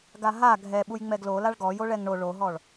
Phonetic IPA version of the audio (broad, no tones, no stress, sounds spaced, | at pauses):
ɡ a ɦ a ɡʱ ɛ ɓ u j ŋ͡m ɛ ɡ l o l a ɭ ɡ ɔ j o ɭ ɛ ŋ ɳ o ɭ o ɦ ɔ ɭ